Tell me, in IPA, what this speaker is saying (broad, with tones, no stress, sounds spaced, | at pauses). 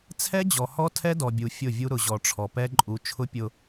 t͡sʰ ɛ˦ d͡ʑ ɔ˨ h ɔ˦ tʰ ɛ˦ d ɔ˨ bʲ u˨ fʲ ʊ˦˨ vʲ u˦ ɾ ʊ˨ ʑ ɔ˨ ʈ͡ʂʰ ɔ˨ p ɛ˦ ǃʼ u˨˦ t͡ʃʰ ʊ˦ pʲ ʊ˨